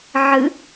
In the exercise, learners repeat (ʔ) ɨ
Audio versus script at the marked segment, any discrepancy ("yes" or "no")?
yes